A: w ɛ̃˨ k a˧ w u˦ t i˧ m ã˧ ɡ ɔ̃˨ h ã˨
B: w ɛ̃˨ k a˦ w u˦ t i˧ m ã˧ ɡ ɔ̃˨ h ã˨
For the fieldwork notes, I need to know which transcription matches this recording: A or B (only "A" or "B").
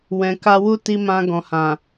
A